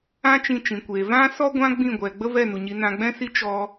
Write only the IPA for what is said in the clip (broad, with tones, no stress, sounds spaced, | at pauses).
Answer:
ã˦ t͡ʃ ĩ˧ t͡ʃ ĩ˨ kʷ eː˨ v ã˦ s ɔ˦ ɡʷ ã˦ ɡ͡b ĩ˦˨ ɡʷ ɛ˨ ɡ͡b ə˦ v ɛ˦˨ n u˨ ɲ i˨˦ n ã˧ ɡ͡b ɛ̃˦ s i˦ t͡ʃ ɔ˧